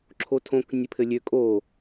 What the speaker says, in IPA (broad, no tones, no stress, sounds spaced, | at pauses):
ǁʰ o tʰ õ k nʲ ɘ pʰ ɘ lʲ ø kʼ o